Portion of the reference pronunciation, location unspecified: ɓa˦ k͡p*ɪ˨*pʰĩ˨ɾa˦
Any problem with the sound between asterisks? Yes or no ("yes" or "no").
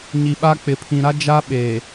no